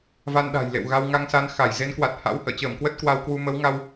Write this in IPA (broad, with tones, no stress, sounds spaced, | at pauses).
v a˧ n ɗ a̤˨˩ j l ḛ˧˨ w ɣ a˧ w ŋ a˧ ŋ s a˧ n x a˧˩ j z e˨˦ n k w a˨˩ t̚ h a̰˧˥ w h ə̰ː˧˨ t͡ɕ əː˧˩ m k w ə˦˥ t̚ k w a˧ w k w u˧ m ə˨˦ w ŋ a˧ w